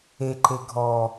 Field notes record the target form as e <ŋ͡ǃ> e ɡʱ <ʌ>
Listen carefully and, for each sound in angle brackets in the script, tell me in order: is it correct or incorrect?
incorrect, incorrect

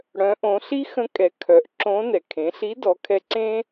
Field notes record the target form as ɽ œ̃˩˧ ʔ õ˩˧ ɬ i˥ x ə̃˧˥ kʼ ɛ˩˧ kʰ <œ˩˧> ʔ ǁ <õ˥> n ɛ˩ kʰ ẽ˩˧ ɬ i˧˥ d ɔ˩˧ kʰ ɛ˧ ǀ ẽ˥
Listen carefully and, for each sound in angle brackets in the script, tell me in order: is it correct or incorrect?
correct, incorrect

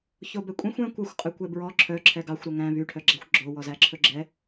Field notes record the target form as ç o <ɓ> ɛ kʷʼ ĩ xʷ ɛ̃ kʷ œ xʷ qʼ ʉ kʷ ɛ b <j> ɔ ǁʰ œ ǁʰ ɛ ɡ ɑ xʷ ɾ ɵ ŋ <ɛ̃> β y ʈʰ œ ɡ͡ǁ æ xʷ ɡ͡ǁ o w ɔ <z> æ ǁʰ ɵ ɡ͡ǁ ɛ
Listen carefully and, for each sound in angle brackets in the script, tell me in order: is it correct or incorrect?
incorrect, incorrect, incorrect, correct

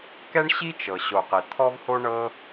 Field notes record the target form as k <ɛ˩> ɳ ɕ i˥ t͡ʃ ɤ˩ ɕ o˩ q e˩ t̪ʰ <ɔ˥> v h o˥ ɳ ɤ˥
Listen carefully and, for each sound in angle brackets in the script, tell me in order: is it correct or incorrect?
incorrect, correct

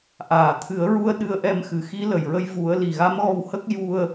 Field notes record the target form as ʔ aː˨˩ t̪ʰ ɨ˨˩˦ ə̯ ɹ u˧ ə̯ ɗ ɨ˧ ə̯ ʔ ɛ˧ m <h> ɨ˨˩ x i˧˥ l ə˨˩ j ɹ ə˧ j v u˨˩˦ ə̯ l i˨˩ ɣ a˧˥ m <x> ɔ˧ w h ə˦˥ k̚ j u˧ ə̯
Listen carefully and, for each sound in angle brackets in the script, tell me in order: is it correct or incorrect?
incorrect, incorrect

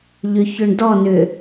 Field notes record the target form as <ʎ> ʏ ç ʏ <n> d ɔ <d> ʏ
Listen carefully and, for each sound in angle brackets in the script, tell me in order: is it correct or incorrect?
correct, incorrect, incorrect

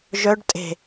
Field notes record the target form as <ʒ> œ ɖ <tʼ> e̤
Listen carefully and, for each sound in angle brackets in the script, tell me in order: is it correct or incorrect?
correct, correct

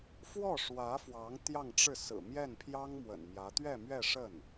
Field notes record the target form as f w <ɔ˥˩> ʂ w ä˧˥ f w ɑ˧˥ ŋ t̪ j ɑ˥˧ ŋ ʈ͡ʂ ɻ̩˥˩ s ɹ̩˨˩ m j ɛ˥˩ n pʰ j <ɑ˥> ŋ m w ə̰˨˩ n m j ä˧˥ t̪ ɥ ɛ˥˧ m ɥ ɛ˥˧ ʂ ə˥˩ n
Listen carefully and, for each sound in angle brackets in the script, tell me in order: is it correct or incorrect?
correct, correct

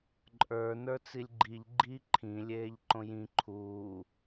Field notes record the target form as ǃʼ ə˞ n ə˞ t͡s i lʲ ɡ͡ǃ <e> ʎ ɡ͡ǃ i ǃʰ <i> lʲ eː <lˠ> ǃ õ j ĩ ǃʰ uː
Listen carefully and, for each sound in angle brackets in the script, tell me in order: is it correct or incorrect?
incorrect, incorrect, incorrect

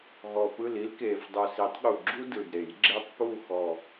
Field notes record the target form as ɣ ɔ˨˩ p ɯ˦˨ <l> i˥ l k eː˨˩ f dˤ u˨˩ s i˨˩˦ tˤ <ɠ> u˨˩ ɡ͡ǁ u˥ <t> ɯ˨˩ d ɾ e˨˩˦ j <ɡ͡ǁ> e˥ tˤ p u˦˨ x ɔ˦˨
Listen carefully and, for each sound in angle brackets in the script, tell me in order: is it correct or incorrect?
correct, correct, incorrect, correct

